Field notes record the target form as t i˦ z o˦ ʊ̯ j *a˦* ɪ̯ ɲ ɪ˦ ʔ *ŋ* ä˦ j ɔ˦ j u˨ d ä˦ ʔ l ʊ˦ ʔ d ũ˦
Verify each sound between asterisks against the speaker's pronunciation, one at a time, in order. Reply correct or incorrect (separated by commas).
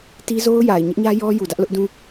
incorrect, incorrect